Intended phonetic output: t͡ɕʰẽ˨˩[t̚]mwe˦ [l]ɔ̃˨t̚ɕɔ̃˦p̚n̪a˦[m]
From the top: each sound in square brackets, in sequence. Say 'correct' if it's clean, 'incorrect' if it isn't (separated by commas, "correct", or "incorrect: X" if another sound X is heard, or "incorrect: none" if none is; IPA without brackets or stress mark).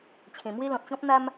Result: incorrect: none, correct, correct